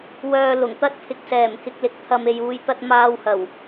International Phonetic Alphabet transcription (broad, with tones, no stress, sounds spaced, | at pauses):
w œː˨ l ʊ˨˩ ŋ t̪ ɐ˥ t̚ pʰ ɪ˨ k̚ s ɛː˨˩ m k ɪ˧ k̚ l ɪ˨ k̚ t̪ʰ ɐ˨ m e˨ j uː˨ j t̪ ɐ˧ t̚ m aː˧ w h ɐ˨˩ w